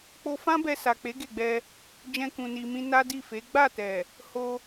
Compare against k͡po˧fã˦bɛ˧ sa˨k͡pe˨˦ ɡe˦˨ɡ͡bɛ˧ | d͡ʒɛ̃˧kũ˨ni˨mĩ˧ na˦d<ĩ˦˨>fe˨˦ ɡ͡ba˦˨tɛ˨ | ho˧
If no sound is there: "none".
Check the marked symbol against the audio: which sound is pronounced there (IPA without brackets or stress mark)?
i˦˨